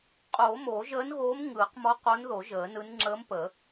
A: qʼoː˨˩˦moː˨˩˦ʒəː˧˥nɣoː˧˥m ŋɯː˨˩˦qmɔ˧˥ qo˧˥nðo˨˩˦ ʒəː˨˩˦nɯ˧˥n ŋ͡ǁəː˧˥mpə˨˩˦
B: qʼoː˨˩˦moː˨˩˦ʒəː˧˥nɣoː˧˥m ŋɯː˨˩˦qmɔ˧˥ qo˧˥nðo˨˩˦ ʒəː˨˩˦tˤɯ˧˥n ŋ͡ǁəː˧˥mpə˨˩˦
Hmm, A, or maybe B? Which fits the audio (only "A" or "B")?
A